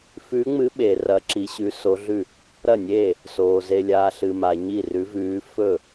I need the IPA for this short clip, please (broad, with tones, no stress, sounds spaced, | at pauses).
f ʉː˧˥ ŋ͡m ɨ˧˥ ɓ e˨ r ɐ˧˥ ǁ i˧˥ ɕ ʉ˧˥ s o˧˥ ɮ ʉ˥˩ | ɾ ɐ˥˩ nʲ eː˥˩ | s oː˨ z e˨ lʲ aː˨ ɬ ɨ˨ m a˨ ɲ i˥˩ r ʉ˧˥ v ʉː˧˥ f ɵ˥˩